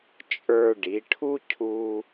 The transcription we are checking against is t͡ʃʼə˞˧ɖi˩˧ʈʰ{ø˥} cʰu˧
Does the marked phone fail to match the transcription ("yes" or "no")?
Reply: yes